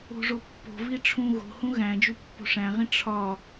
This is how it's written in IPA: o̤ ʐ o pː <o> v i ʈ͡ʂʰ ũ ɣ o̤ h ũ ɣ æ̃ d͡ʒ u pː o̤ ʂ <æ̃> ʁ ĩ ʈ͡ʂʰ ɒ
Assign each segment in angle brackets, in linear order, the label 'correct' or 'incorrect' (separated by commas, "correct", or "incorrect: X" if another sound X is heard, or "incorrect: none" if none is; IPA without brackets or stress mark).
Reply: incorrect: o̤, correct